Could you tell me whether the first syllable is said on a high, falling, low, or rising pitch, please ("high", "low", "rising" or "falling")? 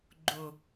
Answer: low